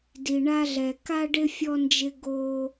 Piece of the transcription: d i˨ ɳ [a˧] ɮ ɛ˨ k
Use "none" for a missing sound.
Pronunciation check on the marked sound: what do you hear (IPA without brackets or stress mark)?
a˧